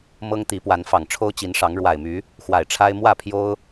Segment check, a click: absent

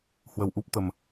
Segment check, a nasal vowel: absent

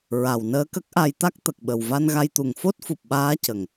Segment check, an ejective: absent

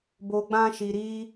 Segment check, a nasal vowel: present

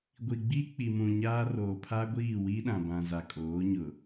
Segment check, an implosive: present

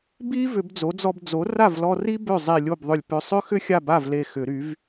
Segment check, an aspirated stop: absent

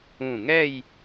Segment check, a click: absent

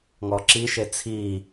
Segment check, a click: present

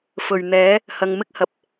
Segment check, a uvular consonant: absent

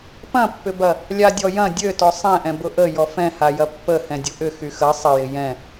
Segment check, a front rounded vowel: present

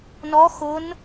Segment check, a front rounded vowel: absent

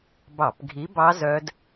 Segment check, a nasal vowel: absent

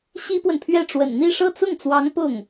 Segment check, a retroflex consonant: present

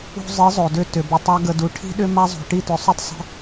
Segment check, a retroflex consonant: present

